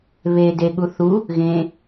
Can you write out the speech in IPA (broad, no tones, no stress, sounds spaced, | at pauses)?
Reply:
β e d e ɠ u θ u | ɣ ẽ